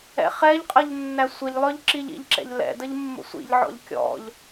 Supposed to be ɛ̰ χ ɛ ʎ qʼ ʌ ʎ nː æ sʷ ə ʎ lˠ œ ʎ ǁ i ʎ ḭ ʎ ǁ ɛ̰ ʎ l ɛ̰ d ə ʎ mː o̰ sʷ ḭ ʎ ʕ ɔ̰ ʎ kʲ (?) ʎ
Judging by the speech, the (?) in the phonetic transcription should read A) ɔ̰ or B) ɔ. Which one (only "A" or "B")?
A